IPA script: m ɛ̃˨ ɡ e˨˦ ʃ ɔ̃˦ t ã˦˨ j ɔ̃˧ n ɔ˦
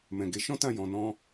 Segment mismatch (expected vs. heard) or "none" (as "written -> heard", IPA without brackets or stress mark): ɔ˦ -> ɔ̃˦